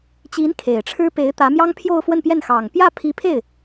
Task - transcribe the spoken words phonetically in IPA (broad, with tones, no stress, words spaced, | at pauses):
t͡ɕi˧˥n kʰe˨˩ɪ̯ʈ͡ʂʰɻ̩˥ pe˧˥ɪ̯t̪ä˧˥ mjɑ˥ŋpʰjo˥˧ʊ̯ fwə˥˧npjɛ˥˩n xɑ˨˩ŋ pjä˥˩ pʰi˧˥pʰe˥˩ɪ̯